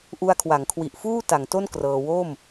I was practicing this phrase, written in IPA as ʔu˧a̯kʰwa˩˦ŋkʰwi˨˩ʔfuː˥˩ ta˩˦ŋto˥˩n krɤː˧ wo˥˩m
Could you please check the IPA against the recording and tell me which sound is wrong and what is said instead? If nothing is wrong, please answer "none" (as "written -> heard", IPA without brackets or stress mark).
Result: none